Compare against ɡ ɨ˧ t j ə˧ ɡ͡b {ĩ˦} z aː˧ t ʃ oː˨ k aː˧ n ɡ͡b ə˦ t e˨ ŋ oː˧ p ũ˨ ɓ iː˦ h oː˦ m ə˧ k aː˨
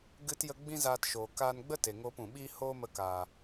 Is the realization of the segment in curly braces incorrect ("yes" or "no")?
no